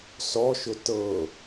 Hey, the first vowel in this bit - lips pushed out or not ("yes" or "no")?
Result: yes